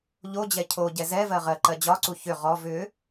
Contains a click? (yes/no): yes